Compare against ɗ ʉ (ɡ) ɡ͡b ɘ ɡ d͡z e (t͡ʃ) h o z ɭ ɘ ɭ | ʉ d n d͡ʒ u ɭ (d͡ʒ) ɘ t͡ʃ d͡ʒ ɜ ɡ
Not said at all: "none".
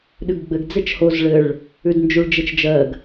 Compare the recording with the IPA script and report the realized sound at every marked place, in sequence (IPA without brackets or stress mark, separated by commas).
ɡ, t͡ʃ, d͡ʒ